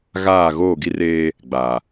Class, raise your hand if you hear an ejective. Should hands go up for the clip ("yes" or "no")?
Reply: no